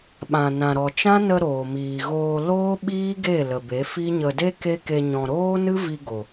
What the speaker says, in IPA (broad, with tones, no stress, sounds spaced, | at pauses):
ɓ ã˨ n ã˨ ɾ ɔ˨ t͡ʃ ã˦ n ə˧ ɾ oː˨ m iː˨ ɣ oː˧ l oː˦ ɓ iː˦ ɡ e˦˨ l ə˨ b e˨˦ f i˦ ɲ ə˧ d e˦ k e˦ k e˧ ɲ ɔ̃˨ ɾ oː˦ n ɨ˦ v i˧ ɡ o˨